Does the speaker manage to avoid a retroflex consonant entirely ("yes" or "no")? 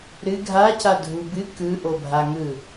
yes